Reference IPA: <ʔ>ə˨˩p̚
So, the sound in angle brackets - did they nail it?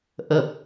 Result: yes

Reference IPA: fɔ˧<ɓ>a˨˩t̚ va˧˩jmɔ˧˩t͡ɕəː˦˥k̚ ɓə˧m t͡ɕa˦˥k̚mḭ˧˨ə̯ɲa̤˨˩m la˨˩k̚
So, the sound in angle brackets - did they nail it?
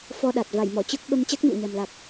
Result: no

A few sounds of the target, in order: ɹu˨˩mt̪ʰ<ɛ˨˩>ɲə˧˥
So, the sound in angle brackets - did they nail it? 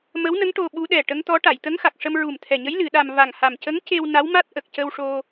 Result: yes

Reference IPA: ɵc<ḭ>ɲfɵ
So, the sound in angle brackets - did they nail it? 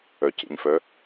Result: yes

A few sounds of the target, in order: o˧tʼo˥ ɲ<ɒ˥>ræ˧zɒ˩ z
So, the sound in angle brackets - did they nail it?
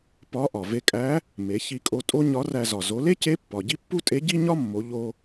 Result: no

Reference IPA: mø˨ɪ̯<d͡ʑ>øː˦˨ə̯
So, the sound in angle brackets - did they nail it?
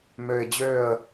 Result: yes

